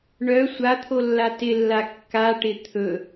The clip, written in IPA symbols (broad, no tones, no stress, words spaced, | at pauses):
ɳœ sʷat̪ʰolːa tɪlːa kːaʈɪ t̪ʰɵ